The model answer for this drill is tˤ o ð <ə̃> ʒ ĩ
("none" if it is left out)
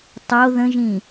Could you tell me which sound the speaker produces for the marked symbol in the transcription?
ə̃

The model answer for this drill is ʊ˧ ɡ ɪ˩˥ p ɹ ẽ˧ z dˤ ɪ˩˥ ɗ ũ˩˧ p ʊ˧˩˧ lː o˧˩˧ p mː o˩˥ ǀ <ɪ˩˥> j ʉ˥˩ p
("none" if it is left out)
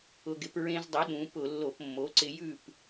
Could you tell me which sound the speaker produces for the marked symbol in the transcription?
ɪ˧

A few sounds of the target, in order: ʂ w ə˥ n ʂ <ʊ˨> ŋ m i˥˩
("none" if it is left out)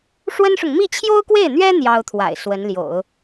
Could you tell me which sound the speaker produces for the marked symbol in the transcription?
ʊ˨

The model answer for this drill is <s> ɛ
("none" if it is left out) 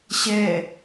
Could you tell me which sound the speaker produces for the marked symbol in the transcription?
ɕ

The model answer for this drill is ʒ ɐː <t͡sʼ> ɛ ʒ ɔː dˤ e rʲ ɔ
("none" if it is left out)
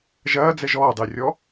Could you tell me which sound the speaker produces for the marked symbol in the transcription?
d͡z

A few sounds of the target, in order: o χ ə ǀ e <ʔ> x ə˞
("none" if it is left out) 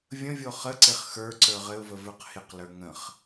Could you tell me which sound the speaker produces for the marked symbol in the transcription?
χ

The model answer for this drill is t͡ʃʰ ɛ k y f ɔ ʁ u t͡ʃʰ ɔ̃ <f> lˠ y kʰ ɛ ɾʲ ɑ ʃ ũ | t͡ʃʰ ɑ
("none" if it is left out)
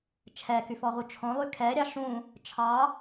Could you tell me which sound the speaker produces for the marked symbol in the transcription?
none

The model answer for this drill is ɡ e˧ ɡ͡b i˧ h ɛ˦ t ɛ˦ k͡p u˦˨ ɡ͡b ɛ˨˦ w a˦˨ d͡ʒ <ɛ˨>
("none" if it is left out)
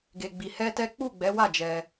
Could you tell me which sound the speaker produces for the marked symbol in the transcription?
ɛ˧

